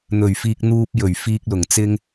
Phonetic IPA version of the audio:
n̪ ɵ˨˩ ɥ f iː˨ k̚ n̪ uː˧ p̚ j ɵ˨˩ ɥ f iː˨ k̚ l ʊ˨˩ ŋ t͡s ɪ˧ ŋ

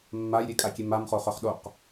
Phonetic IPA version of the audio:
mː a j ɾʲ e kʼ a kʲ e m a m χ o χ œ χ ɗ o q

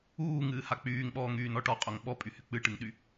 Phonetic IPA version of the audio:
uː ŋ ɨː h a k͡p yː ŋ ɓ ɔː ŋ yː n ɔ ʈ ɔ qʼ o ŋ ɓ ɔ pʼ y h y k͡p ɨ ʈ ɨ ŋ ɗ y

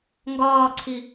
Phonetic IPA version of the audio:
ŋ ɡ ɒː ǀʰ i

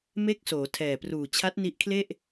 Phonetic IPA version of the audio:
m e˦˥ k̚ s oː˩˦ tʰ ɛː˨˩ p r uː˨˩ t͡ɕʰ a˦˥ t̚ n i˦˥ ʔ kʰ l e˥˩ ʔ

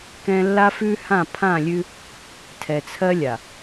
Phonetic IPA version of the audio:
k ɛ̃˦ lː a˦ f ʉ˦ h ã˦˨ pʰ ã˦˨ lʲ ʉ˦ | tʰ ɛ˨ t͡sʰ ɜ˦ lʲ a˨

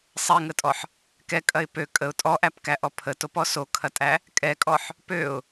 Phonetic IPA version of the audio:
sˤ ɛ ŋ ə tʼ ɔ ħ | k ɛ kʼ ɐ ɪ̯ p ø kʼ ə ʊ̯ tʼ ɔ ʔ æ p k æ ʔ ɔ pʰ ə t o p ɔ s o kʰ ɐ tʼ æ | kʼ ɛ kʼ ɔ ħ | p ø ʊ̯

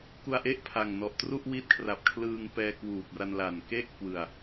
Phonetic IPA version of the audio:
k u˧ a̯ ʔ e˥˩ ʔ pʰ a˨˩ ŋ n ɔ˨˩ ʔ t r u˥˩ ʔ w i˦˥ t̚ kʰ r a˨˩ p̚ kʰ l ɯː˧ ŋ p ɛː˧ k w uː˨˩ p̚ r a˧ n l a˨˩ n k e˥˩ ʔ k w ɯ˨˩ a̯

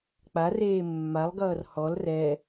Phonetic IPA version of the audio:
k͡p a r eː mː a lˠ ɡ ʌː r h ɔ l r ɛ

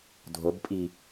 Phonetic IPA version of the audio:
dʱ o b pʼ i

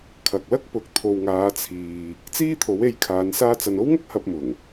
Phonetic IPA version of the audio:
kʰ ɐ˨ k̚ l ɐ˥ k̚ p ʊ˨ k̚ t̪ʰ o˨ w ŋ aː˨˧ t͡sʰ iː˨ | t͡s iː˥ t̪ʰ o˨˥ w e˧ j kʰ aː˨˧ n s aː˧ t͡s ɐ˨ n o˥ w ŋ ɐ˥ k̚ h ɐ˧ p̚ m ʊ˨˩ ŋ

